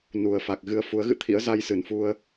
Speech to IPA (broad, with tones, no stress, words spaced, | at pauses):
nu˨˩ə̯fa˨˩k̚ɣɨ˧ə̯ fu˨˦ə̯ɣɨ̰˧˨t̪ʰḭ˧˥ə̯za˧j sɨ˧˩nfu˧ə̯